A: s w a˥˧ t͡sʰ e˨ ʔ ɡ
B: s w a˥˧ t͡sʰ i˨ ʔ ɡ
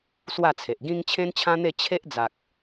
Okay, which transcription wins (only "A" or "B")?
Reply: A